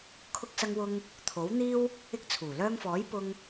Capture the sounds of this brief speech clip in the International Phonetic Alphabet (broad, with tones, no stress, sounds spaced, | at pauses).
kʰ ʊ˥ k̚ s ɐ˥ ŋ w ʊ˥ ŋ | t̪ʰ o˨˥ w n̪ iː˥ w | ɪ˧ k̚ t͡sʰ uː˨˩ l œː˧ ŋ f ɔː˨˥ j p ʊ˥ ŋ